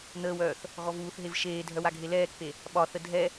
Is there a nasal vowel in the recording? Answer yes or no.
no